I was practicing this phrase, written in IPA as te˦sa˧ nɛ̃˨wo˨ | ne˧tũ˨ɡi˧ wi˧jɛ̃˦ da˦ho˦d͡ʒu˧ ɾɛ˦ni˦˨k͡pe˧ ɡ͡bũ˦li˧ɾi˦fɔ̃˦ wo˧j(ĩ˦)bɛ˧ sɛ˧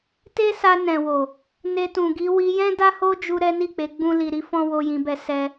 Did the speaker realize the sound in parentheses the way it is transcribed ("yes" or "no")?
no